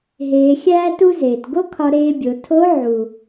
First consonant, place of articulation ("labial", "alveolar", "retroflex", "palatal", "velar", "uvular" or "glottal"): glottal